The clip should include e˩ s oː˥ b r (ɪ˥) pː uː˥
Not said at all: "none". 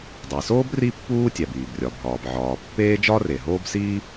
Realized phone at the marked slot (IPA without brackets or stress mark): i˥